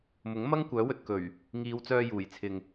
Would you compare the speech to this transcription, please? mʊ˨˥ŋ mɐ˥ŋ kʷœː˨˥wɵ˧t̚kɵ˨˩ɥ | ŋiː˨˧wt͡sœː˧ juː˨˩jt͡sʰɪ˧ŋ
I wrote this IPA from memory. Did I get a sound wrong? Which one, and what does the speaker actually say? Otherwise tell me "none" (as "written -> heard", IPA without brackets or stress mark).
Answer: none